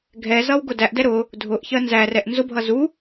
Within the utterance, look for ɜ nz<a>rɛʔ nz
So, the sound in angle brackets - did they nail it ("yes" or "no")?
no